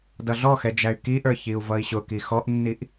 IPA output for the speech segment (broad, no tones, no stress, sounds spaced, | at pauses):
d ʌ ɮ ɔ x ɛ d͡ʒ æ y̯ k i ʔ ə˞ ç i u̯ v ʌ i̯ ɕ ʊ k i x ɔ ʔ nː i ʔ